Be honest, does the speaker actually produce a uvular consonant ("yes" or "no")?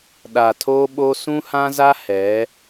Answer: no